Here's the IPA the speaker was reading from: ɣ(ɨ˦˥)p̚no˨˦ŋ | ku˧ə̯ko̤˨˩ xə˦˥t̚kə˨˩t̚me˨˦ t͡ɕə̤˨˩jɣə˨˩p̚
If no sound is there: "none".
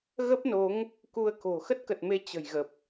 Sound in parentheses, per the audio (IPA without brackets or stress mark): ə˦˥